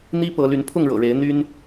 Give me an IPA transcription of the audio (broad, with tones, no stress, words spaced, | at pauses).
n̪i˦pɤ˨˦ly˨˦n pʰʊ˥˨ŋɻɤ̰˨˩ɻe˨˦ɪ̯ n̪y˦n